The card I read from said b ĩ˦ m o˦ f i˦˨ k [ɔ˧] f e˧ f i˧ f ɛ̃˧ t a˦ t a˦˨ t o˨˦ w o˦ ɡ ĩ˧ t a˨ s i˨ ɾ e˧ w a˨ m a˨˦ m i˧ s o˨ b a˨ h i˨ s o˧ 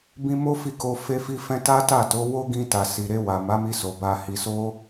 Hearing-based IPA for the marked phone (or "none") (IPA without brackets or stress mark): o˧